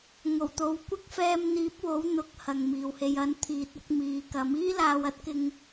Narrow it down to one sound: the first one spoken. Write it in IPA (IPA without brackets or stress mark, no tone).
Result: ŋ